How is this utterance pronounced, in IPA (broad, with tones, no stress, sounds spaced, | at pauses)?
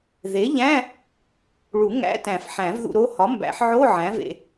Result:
ð e˩˥ ʎ æ̃˧˥˧ | ɭ u˨˩˦ ŋ æ̰˧˥˧ t æ̃˨˩˦ f ħ æ̃˨˩˦ v ð ṵ˦˨ ɾ o˦˥ h ɒ˩˥ m b æ̰˨˩˦ ħ ʕ o˧˥˧ ʕ æ̃˩˥ v ḛ˨